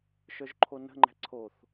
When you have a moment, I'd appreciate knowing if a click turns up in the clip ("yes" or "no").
yes